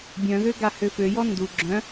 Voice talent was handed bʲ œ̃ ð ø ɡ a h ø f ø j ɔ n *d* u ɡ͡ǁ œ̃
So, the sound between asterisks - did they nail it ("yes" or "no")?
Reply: yes